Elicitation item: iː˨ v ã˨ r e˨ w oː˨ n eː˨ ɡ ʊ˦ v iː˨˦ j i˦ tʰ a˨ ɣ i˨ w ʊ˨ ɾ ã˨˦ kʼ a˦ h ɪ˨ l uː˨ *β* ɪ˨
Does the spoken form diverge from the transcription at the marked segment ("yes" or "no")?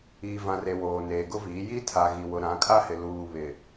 no